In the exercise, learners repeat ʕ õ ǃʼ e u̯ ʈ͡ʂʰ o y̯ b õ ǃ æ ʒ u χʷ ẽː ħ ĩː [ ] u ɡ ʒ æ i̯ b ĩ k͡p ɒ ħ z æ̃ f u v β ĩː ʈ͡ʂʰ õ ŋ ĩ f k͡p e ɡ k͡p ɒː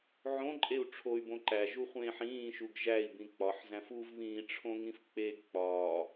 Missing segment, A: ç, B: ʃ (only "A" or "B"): B